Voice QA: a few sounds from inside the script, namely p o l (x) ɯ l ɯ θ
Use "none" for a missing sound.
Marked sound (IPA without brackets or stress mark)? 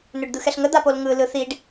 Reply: ŋ